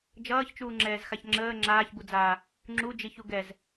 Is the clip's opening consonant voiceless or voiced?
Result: voiced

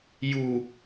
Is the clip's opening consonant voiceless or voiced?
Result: voiced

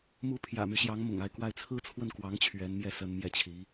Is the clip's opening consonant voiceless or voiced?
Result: voiced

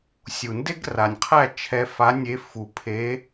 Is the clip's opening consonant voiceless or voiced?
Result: voiceless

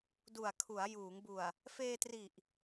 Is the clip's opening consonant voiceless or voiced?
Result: voiced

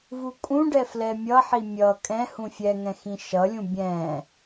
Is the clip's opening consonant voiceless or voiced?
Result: voiced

